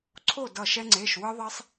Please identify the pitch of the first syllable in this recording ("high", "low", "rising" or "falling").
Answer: falling